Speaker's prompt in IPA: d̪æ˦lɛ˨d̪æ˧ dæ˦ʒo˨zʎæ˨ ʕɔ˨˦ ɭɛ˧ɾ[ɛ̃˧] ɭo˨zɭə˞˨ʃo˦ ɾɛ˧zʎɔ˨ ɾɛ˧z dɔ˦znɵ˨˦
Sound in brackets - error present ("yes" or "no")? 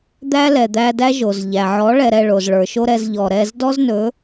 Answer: yes